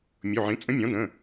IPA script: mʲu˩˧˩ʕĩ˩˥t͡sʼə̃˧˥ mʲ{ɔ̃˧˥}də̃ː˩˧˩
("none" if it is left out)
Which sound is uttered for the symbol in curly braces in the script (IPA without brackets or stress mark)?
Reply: ɔ̃˩˥